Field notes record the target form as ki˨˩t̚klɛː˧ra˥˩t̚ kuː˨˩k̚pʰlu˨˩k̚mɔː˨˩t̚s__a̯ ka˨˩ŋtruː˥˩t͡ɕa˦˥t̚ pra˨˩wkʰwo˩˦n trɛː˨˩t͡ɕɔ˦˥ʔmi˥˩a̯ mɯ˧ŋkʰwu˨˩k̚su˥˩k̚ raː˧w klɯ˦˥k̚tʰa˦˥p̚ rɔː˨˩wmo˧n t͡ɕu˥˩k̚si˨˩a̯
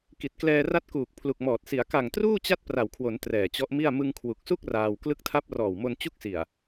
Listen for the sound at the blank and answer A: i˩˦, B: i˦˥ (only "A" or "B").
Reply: A